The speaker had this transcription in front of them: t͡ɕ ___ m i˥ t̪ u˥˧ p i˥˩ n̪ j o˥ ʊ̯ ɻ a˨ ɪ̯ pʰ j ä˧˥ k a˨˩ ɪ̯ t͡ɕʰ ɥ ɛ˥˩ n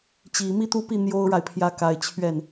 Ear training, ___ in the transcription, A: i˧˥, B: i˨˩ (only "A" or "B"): B